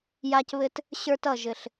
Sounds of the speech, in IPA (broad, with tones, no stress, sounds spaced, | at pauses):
j a˦ c β ɘ˦ t | ɕ ə˞˦ t ʌ˦˨ ʒ ɘ˨ ɬ